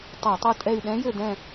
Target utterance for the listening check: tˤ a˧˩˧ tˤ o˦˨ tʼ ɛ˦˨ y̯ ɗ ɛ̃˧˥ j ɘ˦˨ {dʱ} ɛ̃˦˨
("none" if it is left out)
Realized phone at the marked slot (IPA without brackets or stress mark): d